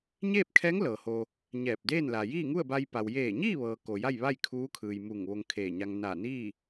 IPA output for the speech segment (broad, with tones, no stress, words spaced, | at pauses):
ɲeː˥˨p̚kʰɛː˧˥ŋ lɤː˩ho˧ | ɲɛː˧˩p̚deː˥˨nla˩ jiː˥˨ŋu˥˨ə̯ba˧j pa˩wjeː˧˩ɲiː˥˨ʋɤː˩ ko˩ ja˥˨jʋa˥˨j kʰuː˧˥kʰɯː˩j muː˧˩ŋʋo˧ŋ kʰeː˧˩ɲa˧ŋ na˧˩niː˥˨